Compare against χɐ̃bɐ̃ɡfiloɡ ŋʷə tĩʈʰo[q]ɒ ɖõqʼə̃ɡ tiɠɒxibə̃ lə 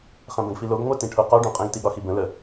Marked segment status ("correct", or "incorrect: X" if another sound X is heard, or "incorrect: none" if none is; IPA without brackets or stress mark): correct